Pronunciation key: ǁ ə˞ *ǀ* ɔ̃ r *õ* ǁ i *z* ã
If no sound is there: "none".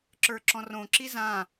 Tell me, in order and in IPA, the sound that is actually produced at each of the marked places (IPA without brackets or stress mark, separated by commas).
ǁ, õ, z